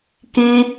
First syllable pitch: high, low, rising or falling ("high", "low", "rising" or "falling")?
high